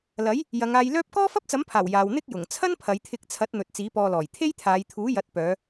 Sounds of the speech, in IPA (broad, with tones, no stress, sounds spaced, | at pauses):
l ɐ˨˥ j | j ɐ˨˧ ŋ aː˧ j l œː˥ p̚ k ɔː˥ f ɐ˥ p̚ t͡s ɐ˨˥ m pʰ aː˨˩ w j aː˨ w n̪ ɪ˥ k̚ j ʊ˨˩ ŋ t͡sʰ ɐ˥ n pʰ ɐ˨˧ j t̪ʰ ɪ˧ k̚ t͡sʰ ɐ˨˥ t̚ n̪ ɵ˨ t̚ t͡s iː˨˥ p ɔː˧ l ɔː˨˩ j t̪ʰ e˥ j t̪ʰ aː˨˧ j t̪ʰ uː˨˥ j ɐ˨˥ t̚ p œː˨˧